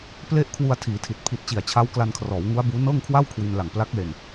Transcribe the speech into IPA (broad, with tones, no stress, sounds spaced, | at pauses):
p l e˥˩ ʔ kʰ w u˧ a̯ tʰ iː˩˦ tʰ i˨˩ t̚ pʰ i˨˩ t̚ t͡ɕ i˨˩ a̯ t͡ɕʰ a˦˥ w k l a˧ n kʰ r ɔː˩˦ w ŋ u˦˥ a̯ b uː˦˥ n ɤː˥˩ ŋ kʰ w a˥˩ w kʰ w i˧ n l a˨˩ ŋ p l a˦˥ k̚ l e˧ n